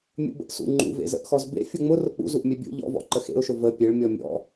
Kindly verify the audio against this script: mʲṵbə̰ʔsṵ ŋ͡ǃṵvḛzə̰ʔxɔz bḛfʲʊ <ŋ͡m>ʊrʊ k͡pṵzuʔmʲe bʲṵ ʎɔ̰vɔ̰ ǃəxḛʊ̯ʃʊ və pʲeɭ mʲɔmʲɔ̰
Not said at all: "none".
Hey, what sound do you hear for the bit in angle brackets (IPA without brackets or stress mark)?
ŋ͡m